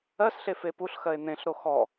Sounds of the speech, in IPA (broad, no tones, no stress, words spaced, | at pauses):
ɜsɬe fepuɬxɜe̯ n̪ẽɬɾo xɔ